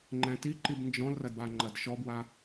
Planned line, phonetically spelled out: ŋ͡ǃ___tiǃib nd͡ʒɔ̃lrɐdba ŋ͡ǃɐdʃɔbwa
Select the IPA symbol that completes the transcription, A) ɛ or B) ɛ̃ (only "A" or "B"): B